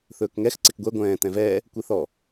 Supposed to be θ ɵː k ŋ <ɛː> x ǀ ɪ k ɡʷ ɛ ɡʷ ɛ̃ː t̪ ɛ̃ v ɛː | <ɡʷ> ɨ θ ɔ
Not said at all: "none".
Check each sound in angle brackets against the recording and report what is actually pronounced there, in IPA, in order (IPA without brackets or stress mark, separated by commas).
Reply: ɛ, kʷ